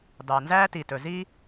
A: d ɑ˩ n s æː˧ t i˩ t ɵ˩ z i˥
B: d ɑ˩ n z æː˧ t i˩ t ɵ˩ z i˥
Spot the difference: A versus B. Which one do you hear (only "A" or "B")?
B